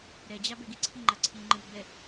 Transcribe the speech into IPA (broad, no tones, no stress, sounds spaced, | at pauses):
ɾ ɛ d͡ʑ a b ɛ ɡ i ǀʰ i ŋ͡ǃ a ǀʰ i ŋ͡ǃ ɯ ɡ͡b ɛ